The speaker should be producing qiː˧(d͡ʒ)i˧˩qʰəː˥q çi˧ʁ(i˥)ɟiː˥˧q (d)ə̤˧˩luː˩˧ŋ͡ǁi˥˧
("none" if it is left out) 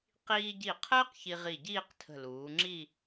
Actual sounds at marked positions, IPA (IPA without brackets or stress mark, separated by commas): ɟ, i˧˩, tʰ